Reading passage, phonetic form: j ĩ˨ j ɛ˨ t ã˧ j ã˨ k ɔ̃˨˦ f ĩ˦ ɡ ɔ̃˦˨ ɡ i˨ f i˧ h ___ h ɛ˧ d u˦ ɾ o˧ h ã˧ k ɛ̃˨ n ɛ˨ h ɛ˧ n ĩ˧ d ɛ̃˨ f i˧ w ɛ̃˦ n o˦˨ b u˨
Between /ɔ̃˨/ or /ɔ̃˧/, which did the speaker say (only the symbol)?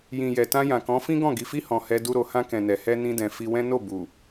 ɔ̃˨